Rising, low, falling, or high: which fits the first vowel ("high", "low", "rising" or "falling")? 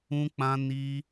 high